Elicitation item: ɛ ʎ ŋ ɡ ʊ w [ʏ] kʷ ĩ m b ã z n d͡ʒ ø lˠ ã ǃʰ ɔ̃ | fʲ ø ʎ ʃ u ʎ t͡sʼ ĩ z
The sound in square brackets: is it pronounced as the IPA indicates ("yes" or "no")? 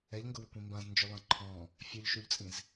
yes